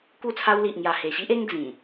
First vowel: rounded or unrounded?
rounded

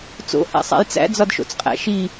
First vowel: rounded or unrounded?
rounded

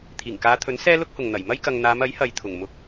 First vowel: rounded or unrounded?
unrounded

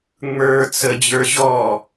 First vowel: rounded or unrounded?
unrounded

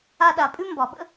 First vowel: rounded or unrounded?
unrounded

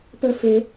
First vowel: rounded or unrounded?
rounded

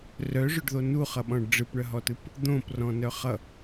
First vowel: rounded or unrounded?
rounded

